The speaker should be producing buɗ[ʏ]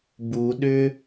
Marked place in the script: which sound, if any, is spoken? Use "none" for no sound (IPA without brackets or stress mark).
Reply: ʏ